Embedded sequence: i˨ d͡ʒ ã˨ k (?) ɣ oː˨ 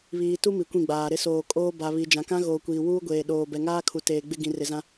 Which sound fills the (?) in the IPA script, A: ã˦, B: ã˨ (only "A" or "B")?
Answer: A